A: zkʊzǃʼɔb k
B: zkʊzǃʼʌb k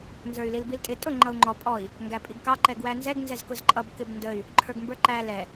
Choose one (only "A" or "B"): B